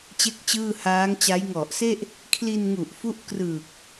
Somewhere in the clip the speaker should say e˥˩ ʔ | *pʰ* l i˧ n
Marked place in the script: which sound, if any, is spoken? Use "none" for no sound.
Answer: kʰ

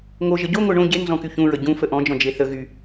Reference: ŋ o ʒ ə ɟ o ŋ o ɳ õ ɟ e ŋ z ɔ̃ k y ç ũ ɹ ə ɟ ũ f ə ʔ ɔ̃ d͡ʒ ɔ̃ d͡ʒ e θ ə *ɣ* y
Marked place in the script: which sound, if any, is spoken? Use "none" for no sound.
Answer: ɣ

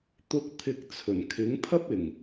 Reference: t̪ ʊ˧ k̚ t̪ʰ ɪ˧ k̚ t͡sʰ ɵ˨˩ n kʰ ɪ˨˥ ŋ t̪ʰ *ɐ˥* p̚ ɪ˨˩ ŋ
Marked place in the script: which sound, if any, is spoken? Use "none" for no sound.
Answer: ɐ˥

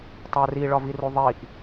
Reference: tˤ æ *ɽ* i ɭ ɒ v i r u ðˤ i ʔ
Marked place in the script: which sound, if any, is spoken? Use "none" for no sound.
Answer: r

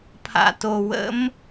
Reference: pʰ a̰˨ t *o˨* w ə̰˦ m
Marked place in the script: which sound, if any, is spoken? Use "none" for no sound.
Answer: o˨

